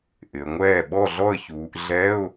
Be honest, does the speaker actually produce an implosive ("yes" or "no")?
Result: yes